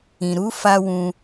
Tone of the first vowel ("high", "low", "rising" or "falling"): low